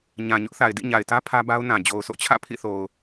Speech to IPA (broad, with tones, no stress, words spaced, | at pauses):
ɲã˨ɲʊ˦ʔθa˨ɪ̯dḭ˦˨ ɲa˨ɪ̯tä˦ pʰä˦ba˦ʊ̯nã˨ d͡ʑo˨ʊ̯so̰˦˨ t͡ɕʰä̰˦˨pʰḭ˦˨θo˨ʊ̯